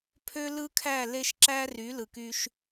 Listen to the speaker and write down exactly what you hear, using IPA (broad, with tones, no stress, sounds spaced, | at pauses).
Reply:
pʰ ø˦ l ɯ˦ kʰ æ˦˨ l e˦ ʃ ǁ æ˦ r y˨˦ l ɯ˨ k y˦ ʃ